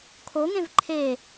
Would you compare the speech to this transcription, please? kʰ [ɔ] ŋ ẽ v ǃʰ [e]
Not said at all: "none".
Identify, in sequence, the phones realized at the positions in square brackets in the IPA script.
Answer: o, e

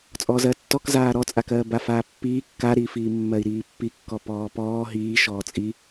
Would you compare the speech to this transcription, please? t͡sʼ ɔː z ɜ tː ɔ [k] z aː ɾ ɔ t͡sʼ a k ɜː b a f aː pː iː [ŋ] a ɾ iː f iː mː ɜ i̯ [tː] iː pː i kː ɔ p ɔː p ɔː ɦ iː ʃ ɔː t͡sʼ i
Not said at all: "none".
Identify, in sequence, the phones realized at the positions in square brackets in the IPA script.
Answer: k, kː, ɾ

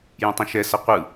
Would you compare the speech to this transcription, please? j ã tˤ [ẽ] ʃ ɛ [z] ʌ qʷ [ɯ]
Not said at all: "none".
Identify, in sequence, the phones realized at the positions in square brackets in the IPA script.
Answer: ẽ, s, ɯ

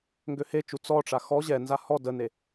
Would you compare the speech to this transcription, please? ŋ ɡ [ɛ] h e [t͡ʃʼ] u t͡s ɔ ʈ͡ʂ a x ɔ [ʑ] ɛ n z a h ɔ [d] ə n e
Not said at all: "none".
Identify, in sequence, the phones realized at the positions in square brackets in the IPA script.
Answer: ø, t͡ʃ, ʑ, d

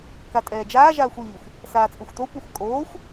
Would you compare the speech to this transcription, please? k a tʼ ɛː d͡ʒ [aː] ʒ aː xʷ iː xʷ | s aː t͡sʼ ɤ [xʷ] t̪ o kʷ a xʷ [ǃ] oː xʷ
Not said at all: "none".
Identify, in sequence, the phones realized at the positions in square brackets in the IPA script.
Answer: aː, xʷ, kʼ

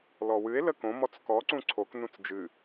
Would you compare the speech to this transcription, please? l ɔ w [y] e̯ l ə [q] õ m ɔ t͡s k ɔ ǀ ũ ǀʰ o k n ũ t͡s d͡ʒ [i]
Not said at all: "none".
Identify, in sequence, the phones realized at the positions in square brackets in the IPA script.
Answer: ɨ, k, ɨ

